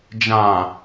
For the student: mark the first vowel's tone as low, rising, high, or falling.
low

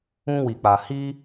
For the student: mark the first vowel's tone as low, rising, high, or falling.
high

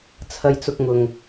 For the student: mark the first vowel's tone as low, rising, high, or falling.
high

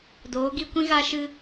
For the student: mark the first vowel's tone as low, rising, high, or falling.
rising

